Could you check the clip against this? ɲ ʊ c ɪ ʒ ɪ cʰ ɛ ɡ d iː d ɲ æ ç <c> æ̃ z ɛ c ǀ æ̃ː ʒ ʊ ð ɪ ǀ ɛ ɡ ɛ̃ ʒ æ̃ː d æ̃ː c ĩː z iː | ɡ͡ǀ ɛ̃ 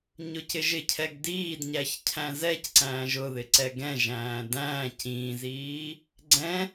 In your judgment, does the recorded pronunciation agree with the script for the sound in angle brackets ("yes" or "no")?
no